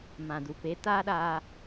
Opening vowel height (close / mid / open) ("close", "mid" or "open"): open